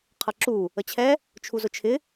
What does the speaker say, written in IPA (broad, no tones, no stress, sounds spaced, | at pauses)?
qʰ ʌ ǁ u | ə t͡ɕʰ ɛ | t͡ʃʰ u z ʊ t͡ʃʰ ɪ